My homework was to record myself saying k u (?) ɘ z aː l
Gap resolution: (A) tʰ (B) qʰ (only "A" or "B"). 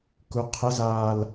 B